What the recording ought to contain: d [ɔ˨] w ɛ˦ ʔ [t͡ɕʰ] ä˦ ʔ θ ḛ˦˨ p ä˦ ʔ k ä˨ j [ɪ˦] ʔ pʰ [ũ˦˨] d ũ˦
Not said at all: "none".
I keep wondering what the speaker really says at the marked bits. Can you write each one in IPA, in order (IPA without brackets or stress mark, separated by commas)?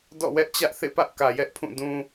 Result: ɔ̰˦˨, t͡ɕ, ɛ˦, ũ˦˨